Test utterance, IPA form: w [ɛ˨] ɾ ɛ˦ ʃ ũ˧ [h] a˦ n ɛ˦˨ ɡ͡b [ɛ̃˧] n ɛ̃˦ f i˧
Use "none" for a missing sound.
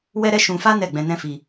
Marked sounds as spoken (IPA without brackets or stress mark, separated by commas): ɛ˦, f, ɛ̃˧